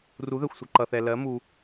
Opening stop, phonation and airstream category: click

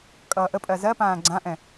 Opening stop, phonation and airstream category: ejective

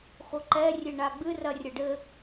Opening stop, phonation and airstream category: click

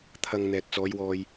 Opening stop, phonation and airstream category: aspirated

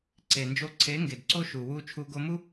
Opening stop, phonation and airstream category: click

